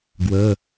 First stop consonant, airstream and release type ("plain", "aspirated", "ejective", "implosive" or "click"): plain